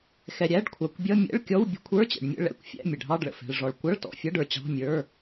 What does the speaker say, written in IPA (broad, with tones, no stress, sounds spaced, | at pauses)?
x ɛ˩ ɾʲ æ˧˥˧ ɖ kʷʰ ɑ˩ kʷ bʲ ʌ˧˥˧ mʲ ɛ̰˧˥˧ ɭ kʲ ɔ˧˥˧ w bʲ ə̤˧˥˧ kʷʰ ə˞˧˥˧ t͡ɕ ɛ̰˩ ɖ mʲ ə̰˧˥˧ ɭ ɛ̰˧˥˧ kʷ fʲ æ̰˧˥˧ mʲ ə˩ ɖʱ ɑ˧˥˧ ɖ ɭ ə̰˩ f ɛ̤˩ ɭ ʐ ɔ˩ ɭ kʷ ʌ˧˥˧ ɭ t ɔ̰˩ fʲ ʌ˧˥˧ ɖ ə˞˩ t͡ɕ ɑ̤˧˥˧ mʲ ə˞˧˥˧